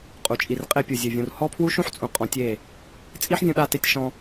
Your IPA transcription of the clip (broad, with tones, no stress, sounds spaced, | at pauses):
qʼ u˨ t͡ʃʼ i˨ r qʼ e˧ pʲ u˨ zʲ ɘ˨ vʲ ũ˨ r h ɔ˦ pʰ w u˦ ʃ ũ˦ ħ t͡sʼ ũ˨ qʼ ɔ̃˨˦ tʲ e˦˨ | t͡sʼ i˦ ħ vʲ ũ˧ ɗ a˧ t e˧ tʲ ʃ ɔ̃˧